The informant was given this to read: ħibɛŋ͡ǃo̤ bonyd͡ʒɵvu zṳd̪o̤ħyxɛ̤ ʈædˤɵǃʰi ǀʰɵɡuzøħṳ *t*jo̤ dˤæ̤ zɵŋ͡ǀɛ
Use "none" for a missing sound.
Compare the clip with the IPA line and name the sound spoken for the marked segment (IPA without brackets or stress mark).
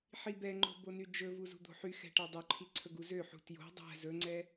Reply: t